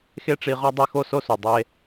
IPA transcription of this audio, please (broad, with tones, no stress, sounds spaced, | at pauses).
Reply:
x e˥ ʈ͡ʂ i˧ ʁ ɒ˥ dˤ e˥ x o˥ s o˥ s u˩ dˤ e˧